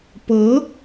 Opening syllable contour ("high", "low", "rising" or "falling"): rising